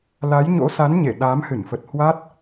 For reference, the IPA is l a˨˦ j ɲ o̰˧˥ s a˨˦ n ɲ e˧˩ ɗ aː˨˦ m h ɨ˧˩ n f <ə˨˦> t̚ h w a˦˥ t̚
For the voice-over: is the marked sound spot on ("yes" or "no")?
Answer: no